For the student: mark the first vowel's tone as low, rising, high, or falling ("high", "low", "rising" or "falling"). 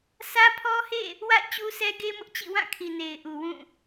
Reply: high